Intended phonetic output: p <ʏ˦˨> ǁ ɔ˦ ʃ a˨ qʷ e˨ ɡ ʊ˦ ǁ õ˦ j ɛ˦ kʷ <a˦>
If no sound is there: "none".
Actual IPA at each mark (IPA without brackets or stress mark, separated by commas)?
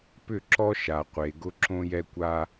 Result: ʏ˦˨, a˦